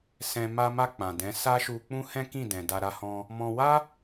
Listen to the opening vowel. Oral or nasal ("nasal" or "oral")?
nasal